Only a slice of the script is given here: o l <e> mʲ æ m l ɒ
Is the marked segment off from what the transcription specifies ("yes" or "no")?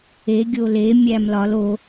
no